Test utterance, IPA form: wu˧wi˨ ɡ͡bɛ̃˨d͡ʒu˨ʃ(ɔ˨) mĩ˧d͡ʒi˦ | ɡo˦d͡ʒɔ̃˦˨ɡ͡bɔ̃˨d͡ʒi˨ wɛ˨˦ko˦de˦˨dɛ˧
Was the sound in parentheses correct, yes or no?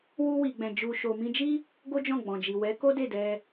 no